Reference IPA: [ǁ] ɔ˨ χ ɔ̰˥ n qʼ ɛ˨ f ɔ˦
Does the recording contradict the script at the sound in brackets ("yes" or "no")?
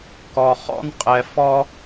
yes